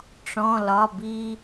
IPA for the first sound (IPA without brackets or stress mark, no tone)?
ʈ͡ʂ